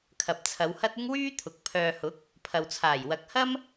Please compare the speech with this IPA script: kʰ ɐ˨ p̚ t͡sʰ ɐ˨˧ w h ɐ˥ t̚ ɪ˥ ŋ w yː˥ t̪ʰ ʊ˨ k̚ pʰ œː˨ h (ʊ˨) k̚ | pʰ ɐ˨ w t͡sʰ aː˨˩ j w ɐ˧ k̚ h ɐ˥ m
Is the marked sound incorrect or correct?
incorrect